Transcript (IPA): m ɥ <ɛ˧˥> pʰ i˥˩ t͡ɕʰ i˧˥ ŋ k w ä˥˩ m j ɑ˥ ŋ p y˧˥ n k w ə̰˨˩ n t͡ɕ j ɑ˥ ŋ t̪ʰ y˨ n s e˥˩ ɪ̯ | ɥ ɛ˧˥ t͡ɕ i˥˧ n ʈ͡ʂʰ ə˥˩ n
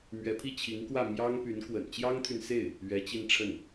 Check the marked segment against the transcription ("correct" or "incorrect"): correct